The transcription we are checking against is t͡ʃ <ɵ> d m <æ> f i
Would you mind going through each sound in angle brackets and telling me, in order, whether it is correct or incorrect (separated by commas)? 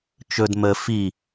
correct, incorrect